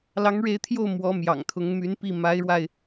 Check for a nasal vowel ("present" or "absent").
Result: absent